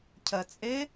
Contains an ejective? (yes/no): yes